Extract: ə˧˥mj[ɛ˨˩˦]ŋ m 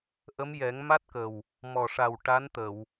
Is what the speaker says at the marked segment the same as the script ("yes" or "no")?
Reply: yes